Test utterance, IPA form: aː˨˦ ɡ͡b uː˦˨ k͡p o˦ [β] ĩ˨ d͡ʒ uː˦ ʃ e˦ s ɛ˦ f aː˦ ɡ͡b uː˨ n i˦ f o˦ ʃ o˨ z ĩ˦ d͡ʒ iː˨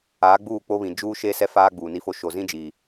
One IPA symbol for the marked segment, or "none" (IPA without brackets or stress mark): β